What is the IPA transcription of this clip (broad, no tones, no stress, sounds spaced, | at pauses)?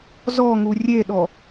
z ɔ ŋ u rʲ e ɗ ɔ